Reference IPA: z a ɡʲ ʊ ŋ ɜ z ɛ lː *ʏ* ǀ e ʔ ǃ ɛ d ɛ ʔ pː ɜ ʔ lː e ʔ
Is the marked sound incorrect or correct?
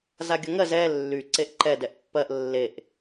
incorrect